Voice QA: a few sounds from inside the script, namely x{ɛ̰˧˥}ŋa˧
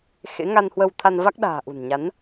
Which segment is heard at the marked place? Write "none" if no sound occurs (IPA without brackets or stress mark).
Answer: ḛ˧˥